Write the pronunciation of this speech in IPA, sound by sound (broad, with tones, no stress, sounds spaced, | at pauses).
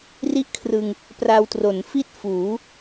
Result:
r i˥˩ ʔ kʰ r ɯ˧ ŋ | p r a˧ w t r o˩˦ n f i˥˩ t̚ f uː˩˦